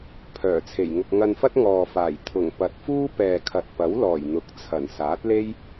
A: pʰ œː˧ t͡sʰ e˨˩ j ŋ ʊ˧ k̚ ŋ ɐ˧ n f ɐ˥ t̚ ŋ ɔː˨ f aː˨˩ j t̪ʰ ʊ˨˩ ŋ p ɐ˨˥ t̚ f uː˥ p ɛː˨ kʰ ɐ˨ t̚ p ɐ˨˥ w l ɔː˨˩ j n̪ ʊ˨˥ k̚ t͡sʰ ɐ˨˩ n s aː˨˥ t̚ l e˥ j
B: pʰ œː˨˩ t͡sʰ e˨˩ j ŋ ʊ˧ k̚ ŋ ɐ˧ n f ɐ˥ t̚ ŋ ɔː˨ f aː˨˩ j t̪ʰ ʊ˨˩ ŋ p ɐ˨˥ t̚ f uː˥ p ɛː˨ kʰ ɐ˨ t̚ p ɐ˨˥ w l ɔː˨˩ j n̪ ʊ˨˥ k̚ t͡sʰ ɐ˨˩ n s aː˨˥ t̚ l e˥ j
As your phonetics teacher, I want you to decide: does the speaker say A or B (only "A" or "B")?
B